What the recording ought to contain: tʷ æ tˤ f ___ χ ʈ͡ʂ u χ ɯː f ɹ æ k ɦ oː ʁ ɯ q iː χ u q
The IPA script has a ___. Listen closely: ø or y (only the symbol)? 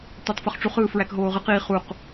y